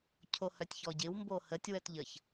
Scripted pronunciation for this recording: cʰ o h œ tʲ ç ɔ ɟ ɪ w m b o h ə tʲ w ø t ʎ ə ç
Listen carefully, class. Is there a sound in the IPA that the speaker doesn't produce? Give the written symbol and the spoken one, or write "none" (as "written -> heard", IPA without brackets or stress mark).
ø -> œ